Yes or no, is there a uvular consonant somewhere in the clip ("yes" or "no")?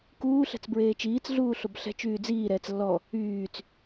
no